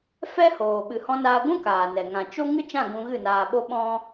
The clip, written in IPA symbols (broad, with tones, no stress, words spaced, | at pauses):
fɛ˦hoː˨ ɓɨ˨hɔ̃˧naː˧ ɡʷũ˦ kaː˨nɛ˨ ŋã˨t͡ʃo˦ ŋɨ˦t͡ʃã˦˨ ɡũ˧ɣɨ˦˨naː˧ɓo˦ ɓɔ̃˦